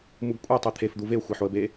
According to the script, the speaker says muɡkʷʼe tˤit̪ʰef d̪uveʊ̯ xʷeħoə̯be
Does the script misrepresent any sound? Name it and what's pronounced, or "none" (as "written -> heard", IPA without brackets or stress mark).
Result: none